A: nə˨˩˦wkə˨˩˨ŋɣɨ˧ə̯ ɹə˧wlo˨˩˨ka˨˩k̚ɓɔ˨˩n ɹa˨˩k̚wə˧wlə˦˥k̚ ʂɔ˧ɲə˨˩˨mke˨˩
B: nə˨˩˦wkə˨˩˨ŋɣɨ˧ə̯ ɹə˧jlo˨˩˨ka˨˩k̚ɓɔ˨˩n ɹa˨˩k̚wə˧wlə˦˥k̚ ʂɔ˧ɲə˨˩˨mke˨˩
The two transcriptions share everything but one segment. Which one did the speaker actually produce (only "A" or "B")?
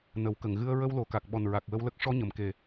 A